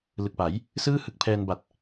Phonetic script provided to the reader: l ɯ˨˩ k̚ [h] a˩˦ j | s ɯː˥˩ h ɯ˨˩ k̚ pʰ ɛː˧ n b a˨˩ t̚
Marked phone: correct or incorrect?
incorrect: p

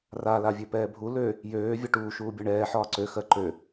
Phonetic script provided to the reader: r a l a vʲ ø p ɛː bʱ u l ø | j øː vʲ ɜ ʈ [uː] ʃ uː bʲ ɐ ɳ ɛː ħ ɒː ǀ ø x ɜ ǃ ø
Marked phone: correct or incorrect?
correct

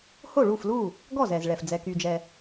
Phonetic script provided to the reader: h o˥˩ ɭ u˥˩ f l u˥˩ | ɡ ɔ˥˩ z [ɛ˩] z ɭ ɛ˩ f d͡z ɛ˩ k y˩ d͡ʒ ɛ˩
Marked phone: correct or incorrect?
correct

